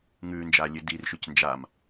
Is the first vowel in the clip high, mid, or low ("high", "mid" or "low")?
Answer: high